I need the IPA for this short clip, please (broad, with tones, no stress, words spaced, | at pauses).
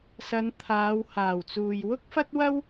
sɐ˨˧nt̪ʰaː˨˧whaː˨˩wt͡suː˨j wʊ˥k̚fɐ˥t̚wɐ˥w